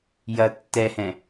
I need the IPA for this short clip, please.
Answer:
jɐ tːɛhɛ̃

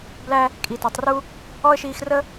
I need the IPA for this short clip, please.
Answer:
blæ˧ | kʼi˩tɔ˩tˤru˥ | ɔ˥ə̯ʃiː˧xrə˥

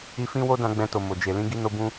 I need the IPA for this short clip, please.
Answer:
i˧fĩ˦wo˦dã˧ ɡ͡bɛ̃˧to˨mo˨ d͡ʒe˨lĩ˧ ɡi˧no˧ bũ˧

